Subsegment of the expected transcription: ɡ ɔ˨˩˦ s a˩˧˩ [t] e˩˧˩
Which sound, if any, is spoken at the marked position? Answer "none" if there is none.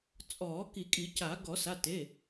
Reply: t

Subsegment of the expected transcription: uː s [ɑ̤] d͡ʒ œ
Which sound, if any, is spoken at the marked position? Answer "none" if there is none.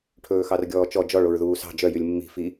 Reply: ɑ̤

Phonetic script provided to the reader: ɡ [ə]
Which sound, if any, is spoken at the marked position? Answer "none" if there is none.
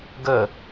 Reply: ə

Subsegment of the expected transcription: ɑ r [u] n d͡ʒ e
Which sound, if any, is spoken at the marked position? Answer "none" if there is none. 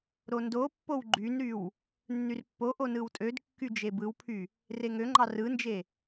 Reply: ɯ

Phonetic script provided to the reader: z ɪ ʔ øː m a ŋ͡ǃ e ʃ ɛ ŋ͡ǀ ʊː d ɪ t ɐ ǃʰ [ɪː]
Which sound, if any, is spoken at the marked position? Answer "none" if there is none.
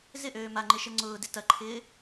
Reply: ɪː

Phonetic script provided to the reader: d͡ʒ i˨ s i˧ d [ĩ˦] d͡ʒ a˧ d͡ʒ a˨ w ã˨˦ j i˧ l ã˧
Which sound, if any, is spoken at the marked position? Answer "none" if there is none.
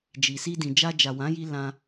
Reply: ĩ˨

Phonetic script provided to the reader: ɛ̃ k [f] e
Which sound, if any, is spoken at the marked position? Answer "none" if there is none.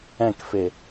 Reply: f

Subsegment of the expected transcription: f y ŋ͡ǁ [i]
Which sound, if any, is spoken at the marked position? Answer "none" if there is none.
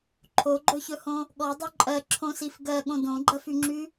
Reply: y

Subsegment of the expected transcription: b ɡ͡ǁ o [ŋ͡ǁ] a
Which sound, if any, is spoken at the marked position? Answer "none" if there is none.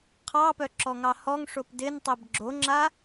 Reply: ŋ͡ǁ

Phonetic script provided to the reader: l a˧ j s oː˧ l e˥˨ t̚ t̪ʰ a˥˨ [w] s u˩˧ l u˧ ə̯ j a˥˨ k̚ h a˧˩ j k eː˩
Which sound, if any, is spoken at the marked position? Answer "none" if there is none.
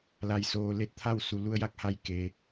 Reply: w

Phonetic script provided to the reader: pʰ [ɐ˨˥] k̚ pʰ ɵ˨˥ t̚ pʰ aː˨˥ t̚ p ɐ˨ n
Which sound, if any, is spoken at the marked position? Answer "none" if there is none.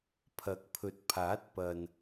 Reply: ɐ˨˥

